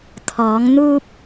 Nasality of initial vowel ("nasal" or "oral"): oral